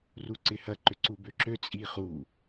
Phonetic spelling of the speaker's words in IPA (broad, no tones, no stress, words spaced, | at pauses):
ruǀɪhɐ ǃʏǀubøǁø t͡sʼiχu